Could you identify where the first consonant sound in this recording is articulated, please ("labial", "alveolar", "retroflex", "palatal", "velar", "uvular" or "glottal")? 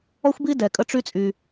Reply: velar